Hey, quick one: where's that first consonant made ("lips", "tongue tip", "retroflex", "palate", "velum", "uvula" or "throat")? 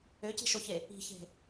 palate